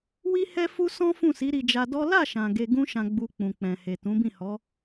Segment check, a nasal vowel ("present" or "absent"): present